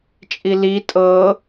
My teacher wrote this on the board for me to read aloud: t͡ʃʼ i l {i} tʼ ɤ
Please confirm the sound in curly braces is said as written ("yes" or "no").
yes